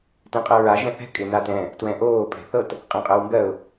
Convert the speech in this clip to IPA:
t ɛ̃ qʼ ɤ ɹ a ʒ ɛ̃ θ ɛ̤ kʼ ɪ n a t ɛ̃ | t w ɛ̃ ʔ oː pʼ ɛ̤ θ ɤ t | qʼ ɛ̃ qʼ ɤ w m b ɜ ʊ̯

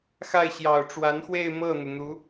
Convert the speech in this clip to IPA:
x a˥˩ ɪ̯ ɕ j ɑ˨˩ ʊ̯ ʈ͡ʂ w a˧˥ n x w e˥˧ ɪ̯ m ɤ˥˩ n̪ u˩ n̪ u˧˥

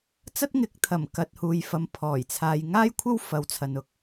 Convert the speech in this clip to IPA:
t͡s ɐ˥ t̚ ŋ ɪ˨˥ k̚ t̪ʰ ɐ˨˩ m k ɐ˨ t̚ h uː˨ j f ɐ˨˧ m pʰ ɔː˨˩ j t͡sʰ aː˨ j ŋ aː˥ j kʷʰ ɐ˥ w f ɐ˨˥ w t͡sʰ ɐ˨ n ʊ˨ k̚

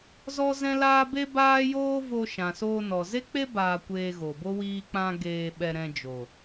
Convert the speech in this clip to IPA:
z ɔ˦ z ɛ̃˦ l aː˦ b e˦ b aː˦ j oː˦ v o˧ ʃ ã˨ s oː˧ n ɔ˨ z e˦ k͡p e˦ b aː˧ kʷ eː˧ ɣ o˨ b o˦ w iː˧ k͡p ã˧ ɡ eː˧ ɓ ɛ˧ ɾ ɛ̃˧ d͡ʒ o˨

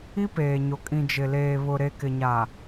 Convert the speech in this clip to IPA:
i˦ p eː˨ ɲ o˨ kʼ ĩ˨ d͡ʒ ɪ˨ l eː˨ β ʊ˨ ɾ e˨ k ɪ˨ ɲ a˨

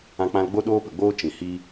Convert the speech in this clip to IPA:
ã˧ k͡p ã˧ l ɡ͡b o˦ ɗ oː˦ p ə˨ ɡ͡b oː˦ t͡ʃ ĩ˨ h i˧

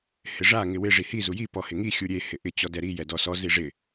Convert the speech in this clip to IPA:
h ɪ ʐ a ŋ ɪ w ɪ ʐ i h i z u j i p ɔ h ɪ ŋ i xʲ u ɾʲ e h ɪ ʔ ɪ t͡ɕ ɔ d ɛ ɾ i j ɛ d ɔ s ɔ z i ʐ ɪ

